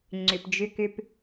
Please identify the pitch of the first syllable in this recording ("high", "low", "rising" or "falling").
low